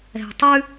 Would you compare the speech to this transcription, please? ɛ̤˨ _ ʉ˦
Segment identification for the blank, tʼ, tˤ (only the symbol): tˤ